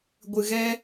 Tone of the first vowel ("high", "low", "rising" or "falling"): low